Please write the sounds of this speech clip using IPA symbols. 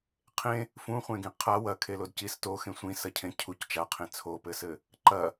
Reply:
qʰẽ | fũχʷẽɡĩ qʰa wɐkʰelod cis toxẽ sʷĩsɐcʰẽ cʰuc t͡ʃaqʰẽ t͡sʰopɘsɘ | ǃɐ

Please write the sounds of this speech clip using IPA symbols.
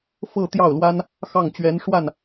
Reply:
fɤ˥˧ t̪jɑ˥˩ʊ̯lwa˥n | xɑ˥˩ŋt͡ɕɥɛ˧˥nʂwa˥˩n

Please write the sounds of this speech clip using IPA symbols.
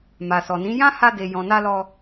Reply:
ma˨sɔ˨nĩ˨˦ jã˦ha˧de˨ jɔ̃˨na˧lɔ˧

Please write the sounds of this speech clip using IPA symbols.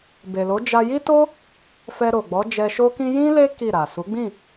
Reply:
be˨lo˨˦ d͡ʒa˧ji˦to˦ | fɛ˧ɾo˨ɡ͡bɔ˨˦ d͡ʒɛ˧ʃo˦kĩ˦ jĩ˦le˦ ki˦˨ɾa˨ su˨˦ɡ͡bĩ˦˨

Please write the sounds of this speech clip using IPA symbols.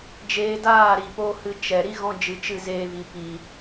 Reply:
d͡ʒeː˧daː˦˨ɾi˨ poː˦hɨ˧ t͡ʃɛ˨ ɾi˦ɣɔ̃˧d͡ʒɨ˨ t͡ʃɨ˦˨zeː˧vi˨ pi˨

